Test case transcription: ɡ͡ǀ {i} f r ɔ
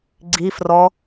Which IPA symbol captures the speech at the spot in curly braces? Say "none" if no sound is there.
i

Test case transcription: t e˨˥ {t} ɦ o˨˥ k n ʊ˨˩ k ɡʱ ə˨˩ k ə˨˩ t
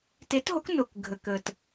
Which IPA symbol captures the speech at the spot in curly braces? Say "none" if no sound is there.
t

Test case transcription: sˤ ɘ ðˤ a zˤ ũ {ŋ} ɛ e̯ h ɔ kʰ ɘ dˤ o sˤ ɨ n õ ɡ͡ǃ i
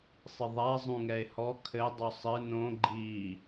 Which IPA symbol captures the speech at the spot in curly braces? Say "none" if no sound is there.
ŋ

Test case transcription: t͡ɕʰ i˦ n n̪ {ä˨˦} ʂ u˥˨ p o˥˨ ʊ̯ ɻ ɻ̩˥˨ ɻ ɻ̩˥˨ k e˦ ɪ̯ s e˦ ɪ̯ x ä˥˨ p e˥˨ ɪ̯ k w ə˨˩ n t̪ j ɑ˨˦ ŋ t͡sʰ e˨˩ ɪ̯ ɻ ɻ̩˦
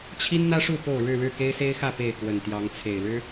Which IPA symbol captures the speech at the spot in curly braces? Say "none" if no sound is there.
ä˦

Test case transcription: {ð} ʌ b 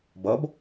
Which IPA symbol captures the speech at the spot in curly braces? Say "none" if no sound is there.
b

